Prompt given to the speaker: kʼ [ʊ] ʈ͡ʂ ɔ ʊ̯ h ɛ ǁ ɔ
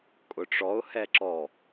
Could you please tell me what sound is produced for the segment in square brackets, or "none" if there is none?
ʊ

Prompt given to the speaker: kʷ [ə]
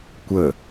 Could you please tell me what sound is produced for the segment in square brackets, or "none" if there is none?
ə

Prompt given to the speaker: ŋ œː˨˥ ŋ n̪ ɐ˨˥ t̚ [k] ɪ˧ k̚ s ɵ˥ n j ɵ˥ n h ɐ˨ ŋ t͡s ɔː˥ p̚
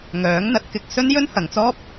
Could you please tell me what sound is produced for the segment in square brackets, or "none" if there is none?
k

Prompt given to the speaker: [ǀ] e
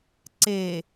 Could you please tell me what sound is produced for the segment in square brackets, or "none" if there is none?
ǀ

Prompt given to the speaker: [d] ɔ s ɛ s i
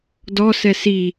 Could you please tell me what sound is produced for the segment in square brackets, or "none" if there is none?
d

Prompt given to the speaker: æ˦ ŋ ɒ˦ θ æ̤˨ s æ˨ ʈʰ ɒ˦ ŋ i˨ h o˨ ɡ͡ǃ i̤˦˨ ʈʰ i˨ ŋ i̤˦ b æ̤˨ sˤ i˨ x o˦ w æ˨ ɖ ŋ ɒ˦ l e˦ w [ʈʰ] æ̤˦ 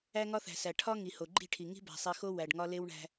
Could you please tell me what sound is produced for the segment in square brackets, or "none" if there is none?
ɳ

